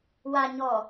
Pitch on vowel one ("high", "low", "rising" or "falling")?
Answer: low